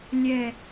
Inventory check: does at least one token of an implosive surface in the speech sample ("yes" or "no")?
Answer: no